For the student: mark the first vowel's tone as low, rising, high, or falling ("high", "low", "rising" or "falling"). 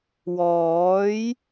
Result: rising